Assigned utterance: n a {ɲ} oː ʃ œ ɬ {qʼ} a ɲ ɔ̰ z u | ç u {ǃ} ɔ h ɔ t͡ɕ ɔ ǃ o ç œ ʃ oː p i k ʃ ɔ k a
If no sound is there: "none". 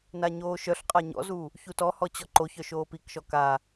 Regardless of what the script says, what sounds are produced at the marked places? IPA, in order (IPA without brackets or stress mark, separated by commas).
ɲ, qʼ, t